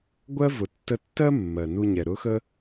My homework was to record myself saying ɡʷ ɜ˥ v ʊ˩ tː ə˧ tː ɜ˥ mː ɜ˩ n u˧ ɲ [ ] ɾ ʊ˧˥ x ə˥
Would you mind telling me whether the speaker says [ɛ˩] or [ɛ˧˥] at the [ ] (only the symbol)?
ɛ˩